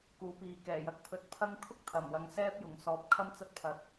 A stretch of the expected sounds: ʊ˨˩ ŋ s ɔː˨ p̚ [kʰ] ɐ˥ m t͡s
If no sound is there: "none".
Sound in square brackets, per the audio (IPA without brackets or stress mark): kʰ